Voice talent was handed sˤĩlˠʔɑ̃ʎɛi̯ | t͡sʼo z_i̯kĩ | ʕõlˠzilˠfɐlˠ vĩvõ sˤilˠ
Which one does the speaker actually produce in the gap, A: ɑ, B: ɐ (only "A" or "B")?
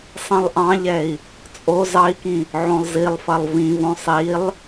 A